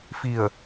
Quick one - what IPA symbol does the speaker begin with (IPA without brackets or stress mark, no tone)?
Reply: f